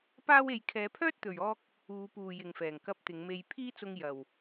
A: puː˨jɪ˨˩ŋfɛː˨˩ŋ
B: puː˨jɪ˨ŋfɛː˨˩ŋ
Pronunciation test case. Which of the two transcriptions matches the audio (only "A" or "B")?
B